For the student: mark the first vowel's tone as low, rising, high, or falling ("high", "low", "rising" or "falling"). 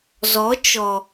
rising